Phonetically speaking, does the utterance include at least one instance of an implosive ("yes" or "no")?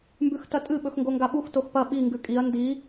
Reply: yes